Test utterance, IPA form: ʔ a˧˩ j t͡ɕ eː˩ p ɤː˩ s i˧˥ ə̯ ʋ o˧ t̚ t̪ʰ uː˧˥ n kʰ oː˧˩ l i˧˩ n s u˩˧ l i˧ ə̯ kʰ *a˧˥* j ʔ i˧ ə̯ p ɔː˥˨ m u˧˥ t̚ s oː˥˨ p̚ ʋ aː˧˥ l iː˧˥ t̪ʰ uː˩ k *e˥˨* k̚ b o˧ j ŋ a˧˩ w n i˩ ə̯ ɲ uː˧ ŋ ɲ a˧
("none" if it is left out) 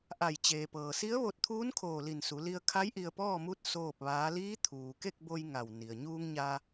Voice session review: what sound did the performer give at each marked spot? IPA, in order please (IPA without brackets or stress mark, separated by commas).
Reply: a˧˥, e˥˨